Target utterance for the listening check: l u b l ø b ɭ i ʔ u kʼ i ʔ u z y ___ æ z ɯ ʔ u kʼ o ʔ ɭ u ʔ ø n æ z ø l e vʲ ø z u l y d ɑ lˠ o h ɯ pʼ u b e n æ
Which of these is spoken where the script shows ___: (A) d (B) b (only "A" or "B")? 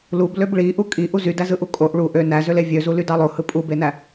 A